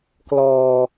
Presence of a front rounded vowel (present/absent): absent